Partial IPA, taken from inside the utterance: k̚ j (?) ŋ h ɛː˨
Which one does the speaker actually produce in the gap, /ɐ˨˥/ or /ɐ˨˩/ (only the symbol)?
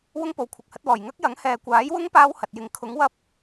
ɐ˨˥